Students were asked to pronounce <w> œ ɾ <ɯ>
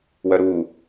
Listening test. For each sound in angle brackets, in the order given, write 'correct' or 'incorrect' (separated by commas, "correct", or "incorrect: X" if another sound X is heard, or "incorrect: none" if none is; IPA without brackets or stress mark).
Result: correct, incorrect: u